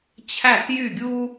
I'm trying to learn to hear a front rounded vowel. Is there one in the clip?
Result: yes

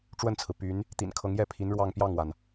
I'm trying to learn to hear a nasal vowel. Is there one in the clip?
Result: no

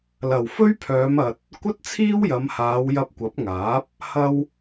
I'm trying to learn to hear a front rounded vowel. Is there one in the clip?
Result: yes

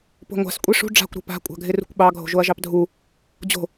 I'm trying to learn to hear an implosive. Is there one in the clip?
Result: yes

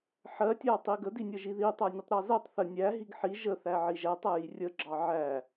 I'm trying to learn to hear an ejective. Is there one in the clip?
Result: no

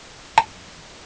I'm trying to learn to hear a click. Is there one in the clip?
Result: yes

